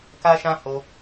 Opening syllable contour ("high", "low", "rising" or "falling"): high